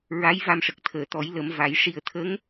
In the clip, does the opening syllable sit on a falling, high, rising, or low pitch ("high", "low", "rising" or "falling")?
rising